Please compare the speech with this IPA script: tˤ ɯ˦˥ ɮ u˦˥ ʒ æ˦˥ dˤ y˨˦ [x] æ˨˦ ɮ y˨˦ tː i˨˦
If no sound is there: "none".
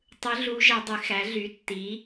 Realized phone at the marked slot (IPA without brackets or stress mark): x